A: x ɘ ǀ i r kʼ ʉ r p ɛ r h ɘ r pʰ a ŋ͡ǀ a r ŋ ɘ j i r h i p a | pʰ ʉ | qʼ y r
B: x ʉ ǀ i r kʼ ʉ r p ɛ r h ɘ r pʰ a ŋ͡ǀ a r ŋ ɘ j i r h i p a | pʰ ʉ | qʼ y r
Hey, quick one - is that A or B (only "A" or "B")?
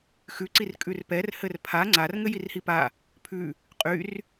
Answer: B